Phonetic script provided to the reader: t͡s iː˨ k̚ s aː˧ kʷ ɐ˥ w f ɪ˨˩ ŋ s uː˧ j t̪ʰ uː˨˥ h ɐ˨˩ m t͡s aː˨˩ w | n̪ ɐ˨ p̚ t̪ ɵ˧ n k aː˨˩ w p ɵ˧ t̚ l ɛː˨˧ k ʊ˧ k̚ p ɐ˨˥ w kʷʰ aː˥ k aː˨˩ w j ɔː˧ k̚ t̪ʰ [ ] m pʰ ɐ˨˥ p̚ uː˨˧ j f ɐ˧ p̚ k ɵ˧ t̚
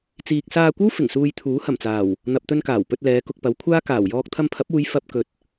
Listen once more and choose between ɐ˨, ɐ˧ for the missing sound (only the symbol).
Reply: ɐ˧